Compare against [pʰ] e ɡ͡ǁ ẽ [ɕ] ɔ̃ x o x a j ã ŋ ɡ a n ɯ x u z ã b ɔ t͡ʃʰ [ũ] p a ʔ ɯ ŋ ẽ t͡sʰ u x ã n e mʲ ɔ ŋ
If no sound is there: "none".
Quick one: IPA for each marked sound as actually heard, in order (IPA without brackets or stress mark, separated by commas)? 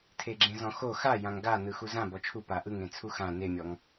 tʰ, z, u